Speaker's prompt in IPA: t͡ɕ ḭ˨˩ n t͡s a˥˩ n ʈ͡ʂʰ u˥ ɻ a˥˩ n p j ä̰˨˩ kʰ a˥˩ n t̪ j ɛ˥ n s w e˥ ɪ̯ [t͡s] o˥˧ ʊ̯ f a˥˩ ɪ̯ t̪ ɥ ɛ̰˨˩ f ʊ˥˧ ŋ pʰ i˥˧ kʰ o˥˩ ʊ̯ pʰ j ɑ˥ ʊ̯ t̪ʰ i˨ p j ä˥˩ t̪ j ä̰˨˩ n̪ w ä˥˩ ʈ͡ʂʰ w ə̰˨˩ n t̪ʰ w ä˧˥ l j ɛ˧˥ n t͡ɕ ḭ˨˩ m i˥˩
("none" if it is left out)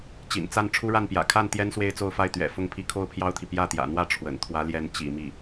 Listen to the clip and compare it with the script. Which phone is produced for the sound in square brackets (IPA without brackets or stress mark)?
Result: t͡s